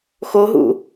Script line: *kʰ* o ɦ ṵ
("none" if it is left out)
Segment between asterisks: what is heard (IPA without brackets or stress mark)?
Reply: x